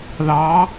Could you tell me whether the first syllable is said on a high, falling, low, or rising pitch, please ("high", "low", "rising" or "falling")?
rising